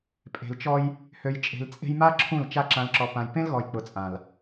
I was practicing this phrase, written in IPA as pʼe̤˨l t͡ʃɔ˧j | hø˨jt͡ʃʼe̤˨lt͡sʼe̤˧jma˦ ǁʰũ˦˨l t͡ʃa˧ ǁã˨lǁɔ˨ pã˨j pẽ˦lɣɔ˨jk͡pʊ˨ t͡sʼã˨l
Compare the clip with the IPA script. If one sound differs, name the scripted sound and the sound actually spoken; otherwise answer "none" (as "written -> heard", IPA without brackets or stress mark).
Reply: none